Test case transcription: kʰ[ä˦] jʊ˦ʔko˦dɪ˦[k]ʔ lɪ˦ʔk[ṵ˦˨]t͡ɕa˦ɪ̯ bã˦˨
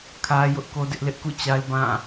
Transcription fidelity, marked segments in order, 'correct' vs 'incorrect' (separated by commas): correct, incorrect, correct